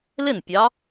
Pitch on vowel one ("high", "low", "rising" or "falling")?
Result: falling